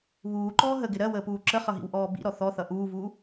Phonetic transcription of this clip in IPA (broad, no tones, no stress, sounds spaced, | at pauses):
β uː ǃ ɔː ɦ ə ɡ ɪ ɾ ɜ w əː p uː ǁ ə χ ʌ ɦ ḭ w ʔ ɔː b ḭ ɾ ɔ θ ɔ θ ʌ ʔ uː v uː